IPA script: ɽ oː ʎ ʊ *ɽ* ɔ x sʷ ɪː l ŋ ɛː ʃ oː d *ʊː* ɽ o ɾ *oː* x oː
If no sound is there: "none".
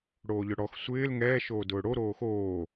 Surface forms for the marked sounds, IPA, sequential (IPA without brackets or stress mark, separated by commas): ɽ, ʊː, oː